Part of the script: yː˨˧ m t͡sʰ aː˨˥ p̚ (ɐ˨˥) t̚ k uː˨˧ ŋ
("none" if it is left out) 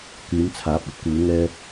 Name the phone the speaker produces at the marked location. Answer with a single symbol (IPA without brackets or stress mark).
ɐ˨˥